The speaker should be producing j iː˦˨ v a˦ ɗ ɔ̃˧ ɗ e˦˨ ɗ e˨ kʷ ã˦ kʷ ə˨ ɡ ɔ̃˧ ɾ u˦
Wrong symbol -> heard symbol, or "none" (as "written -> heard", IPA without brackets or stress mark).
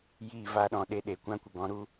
none